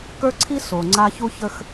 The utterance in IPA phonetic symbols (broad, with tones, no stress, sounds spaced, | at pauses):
k ə˞˦ ǀʰ i˦ s o˨ ŋ͡ǀ a˦ ç u˦ ç ə˦ x